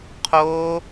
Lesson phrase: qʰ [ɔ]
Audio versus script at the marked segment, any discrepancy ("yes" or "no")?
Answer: yes